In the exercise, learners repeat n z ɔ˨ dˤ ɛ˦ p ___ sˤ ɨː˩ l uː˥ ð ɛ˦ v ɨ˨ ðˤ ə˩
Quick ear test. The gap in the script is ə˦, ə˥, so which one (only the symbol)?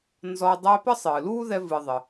ə˥